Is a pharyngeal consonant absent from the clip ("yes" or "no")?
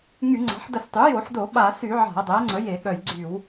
no